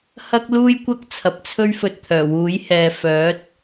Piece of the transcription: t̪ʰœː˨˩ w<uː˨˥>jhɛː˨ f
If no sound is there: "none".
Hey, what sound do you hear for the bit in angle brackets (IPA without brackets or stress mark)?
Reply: uː˨˥